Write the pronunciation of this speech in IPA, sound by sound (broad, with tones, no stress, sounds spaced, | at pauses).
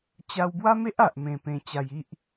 t͡ɕ a˧ w b w a˦ m e˦ ʔ a˨ ʔ m ẽ˧ p ẽ˧ t͡ɕ a˧ j i˦ ʔ